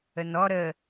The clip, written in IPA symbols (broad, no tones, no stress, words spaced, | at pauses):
ənɔ ɾə